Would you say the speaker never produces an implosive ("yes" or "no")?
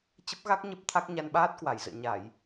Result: no